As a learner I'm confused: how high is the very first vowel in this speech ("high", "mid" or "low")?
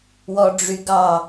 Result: mid